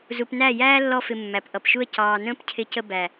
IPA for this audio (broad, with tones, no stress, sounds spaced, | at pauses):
z u˨ p n æ˦˨ j æː˦ lː ɔ˧ f ɪ˨ mː æ˨ p ʔ ʌ˨ p ʃ u˦ ə̯ c ɑː˨ n ə̃ː˦ p cʰ ɪ˧ c ə˧ b æ˨